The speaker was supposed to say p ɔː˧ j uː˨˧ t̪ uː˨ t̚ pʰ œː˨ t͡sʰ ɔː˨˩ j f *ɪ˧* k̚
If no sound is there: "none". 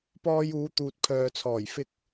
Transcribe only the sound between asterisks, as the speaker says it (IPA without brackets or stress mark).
ɪ˧